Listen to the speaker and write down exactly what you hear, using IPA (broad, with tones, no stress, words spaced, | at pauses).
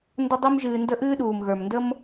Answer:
ndə˦dˤi˦mʒɨː˧ndə˦ ʔɨː˦ɗuː˨m ɣə˞˨mndə˦m